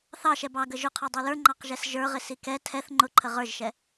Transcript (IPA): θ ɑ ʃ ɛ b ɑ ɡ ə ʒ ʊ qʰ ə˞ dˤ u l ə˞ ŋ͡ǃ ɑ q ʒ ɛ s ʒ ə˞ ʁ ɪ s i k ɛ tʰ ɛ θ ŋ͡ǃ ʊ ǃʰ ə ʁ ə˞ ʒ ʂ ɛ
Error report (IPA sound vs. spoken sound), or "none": ʂ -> ʃ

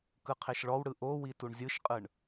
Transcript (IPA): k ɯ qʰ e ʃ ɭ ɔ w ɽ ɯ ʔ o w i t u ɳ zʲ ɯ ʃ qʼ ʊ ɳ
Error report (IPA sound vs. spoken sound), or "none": ʊ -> ɯ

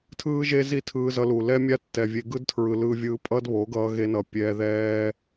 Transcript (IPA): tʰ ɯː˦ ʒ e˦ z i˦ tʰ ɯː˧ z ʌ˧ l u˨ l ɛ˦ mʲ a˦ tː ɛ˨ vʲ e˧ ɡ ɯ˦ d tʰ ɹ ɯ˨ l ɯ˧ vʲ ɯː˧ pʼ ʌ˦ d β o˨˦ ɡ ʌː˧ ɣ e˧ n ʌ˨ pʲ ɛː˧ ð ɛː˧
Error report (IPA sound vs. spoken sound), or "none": none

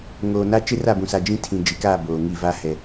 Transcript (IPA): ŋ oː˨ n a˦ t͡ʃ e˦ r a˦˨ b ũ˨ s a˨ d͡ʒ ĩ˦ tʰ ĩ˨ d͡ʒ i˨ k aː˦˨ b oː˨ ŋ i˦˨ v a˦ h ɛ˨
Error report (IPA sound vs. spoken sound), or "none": none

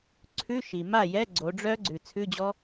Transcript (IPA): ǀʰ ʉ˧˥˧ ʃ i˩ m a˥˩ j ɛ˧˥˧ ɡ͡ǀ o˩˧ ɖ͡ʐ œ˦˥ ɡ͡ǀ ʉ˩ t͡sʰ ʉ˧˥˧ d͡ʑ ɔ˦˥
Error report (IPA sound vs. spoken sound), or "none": none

